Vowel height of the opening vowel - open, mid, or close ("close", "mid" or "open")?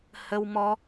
mid